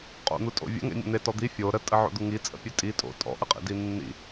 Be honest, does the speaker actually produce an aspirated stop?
no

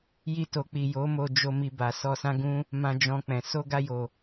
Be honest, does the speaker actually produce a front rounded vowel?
no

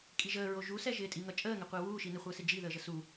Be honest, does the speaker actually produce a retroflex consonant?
no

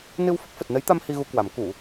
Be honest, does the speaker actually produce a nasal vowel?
no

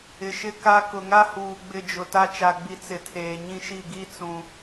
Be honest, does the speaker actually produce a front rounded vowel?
no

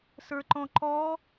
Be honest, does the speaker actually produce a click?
yes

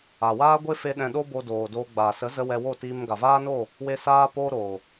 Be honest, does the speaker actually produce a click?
no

